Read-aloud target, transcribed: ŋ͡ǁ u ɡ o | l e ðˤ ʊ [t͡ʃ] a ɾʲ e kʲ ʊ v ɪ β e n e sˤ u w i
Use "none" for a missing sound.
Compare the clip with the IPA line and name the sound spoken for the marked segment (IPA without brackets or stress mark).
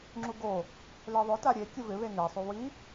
t